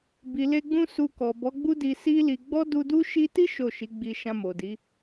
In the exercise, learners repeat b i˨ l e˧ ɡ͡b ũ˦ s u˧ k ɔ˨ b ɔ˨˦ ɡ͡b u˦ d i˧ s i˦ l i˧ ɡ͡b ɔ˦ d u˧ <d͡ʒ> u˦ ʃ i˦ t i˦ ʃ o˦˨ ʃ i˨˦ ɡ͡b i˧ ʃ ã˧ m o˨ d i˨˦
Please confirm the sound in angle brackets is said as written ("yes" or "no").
no